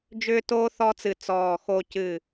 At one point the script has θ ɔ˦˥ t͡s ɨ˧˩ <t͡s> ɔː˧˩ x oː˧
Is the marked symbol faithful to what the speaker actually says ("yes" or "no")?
yes